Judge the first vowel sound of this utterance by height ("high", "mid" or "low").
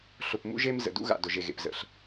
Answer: high